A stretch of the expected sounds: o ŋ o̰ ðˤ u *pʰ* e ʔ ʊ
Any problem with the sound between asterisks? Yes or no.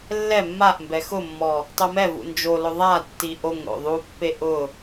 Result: yes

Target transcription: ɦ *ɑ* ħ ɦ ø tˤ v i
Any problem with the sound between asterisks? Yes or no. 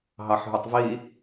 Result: no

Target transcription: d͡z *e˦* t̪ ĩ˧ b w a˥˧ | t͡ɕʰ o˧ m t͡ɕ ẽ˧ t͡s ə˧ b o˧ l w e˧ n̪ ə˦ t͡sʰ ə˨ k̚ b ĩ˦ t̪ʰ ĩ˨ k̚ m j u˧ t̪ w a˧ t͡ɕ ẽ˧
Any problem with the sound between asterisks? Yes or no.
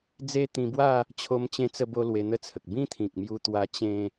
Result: no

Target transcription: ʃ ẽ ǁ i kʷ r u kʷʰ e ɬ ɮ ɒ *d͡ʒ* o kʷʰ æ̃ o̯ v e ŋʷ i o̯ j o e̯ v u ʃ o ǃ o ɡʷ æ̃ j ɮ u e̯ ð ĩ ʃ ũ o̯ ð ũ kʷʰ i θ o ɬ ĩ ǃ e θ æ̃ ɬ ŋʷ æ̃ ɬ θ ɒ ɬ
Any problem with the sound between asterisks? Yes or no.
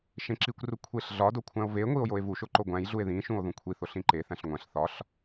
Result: yes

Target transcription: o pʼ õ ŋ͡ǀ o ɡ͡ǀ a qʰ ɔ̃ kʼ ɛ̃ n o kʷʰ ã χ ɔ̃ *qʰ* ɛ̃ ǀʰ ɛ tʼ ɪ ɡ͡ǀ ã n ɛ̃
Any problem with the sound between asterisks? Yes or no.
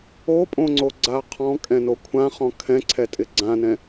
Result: yes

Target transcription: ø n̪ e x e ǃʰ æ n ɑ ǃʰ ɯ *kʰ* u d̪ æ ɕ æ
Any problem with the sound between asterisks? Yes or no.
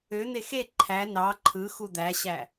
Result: yes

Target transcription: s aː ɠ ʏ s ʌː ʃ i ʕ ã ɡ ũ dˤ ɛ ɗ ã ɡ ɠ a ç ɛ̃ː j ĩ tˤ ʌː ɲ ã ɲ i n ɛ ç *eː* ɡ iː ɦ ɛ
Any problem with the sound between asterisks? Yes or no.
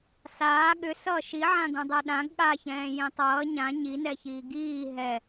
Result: yes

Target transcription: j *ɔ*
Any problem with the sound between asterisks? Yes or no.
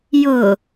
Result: yes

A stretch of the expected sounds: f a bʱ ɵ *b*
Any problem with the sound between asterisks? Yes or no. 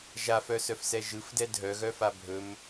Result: yes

